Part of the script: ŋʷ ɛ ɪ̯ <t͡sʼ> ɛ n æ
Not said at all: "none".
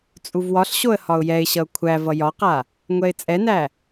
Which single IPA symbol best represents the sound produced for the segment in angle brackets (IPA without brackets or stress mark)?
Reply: t͡sʼ